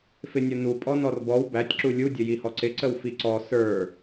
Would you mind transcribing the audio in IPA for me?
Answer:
f ɪ nʲ ʌ n u pʼ ɔ n ɔ r b ɔ w b æ tʲ ǁ u lʲ u dʲ ə j i h ɔ ǀ ɪ ǀ ə w f i ǀ ɔ s ə˞

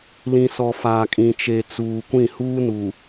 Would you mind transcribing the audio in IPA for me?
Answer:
l ĩ˨ s ɔ˨ f aː˨ kʼ ĩ˨ t͡ʃ e˨ t͡s uː˨ kʷ ĩ˦˨ h uː˦ n u˨

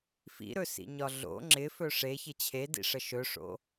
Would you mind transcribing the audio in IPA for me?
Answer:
f ḭ ɾ ɵ s ḭ ɲ ɒ ɮ o̰ ŋ͡ǁ ɪ f ɵ ʂ e ç ɪ t͡ɕʰ e d ḭ ʂ ə ʃ ɵ ʂ o̰

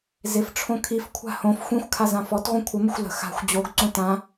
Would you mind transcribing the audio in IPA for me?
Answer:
z ɪ f ʈ͡ʂʰ õ kʰ i f kʷʰ a̤ h õ f xʷ ĩ xʷ kʰ a z ã f ɔ t ʁʷ ĩ kʷʰ ə m ə xʷ l ə̤ x a̤ xʷ d͡ʑ o ɡ ǀ õ t ã

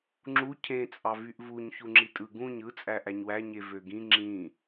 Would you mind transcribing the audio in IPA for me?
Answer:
ŋ͡ǁ u cʰ ẽ t͡sʼ ɑ v y ʔ v u ɲ ç u ŋ͡ǁ i tʼ ɯ ɡ ũ ɲ ɯ t͡sʼ æ ʔ æ ɲ w æ ɲ e v ø ɡ ĩ ŋ͡ǁ ĩ

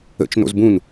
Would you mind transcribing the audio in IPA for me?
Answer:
ə̰ t͡ʃ n o̰ z b ũ n

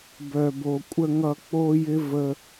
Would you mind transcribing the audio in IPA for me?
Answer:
b œ˨ b o˨ kʷʼ ə˧ ŋ ʌ˧ k͡p o˦ j ɪ˦ v ə˧

